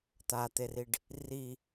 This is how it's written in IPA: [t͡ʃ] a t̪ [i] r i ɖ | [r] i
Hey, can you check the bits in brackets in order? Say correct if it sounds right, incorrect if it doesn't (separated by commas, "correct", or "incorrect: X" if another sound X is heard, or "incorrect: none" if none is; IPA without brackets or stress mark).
incorrect: t̪, incorrect: e, correct